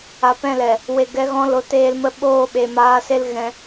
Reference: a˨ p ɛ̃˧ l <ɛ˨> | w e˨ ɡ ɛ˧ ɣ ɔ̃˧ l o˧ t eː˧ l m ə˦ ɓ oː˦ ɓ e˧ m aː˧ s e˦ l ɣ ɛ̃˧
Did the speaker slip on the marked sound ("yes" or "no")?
no